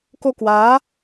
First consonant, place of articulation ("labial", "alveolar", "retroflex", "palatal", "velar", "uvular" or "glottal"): velar